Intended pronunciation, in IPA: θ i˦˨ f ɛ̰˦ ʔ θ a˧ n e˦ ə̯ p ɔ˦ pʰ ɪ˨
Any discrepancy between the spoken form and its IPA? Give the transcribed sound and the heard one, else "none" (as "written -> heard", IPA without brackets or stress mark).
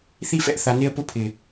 ɔ˦ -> ʊ˦